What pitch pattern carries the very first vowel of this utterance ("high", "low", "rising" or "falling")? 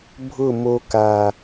falling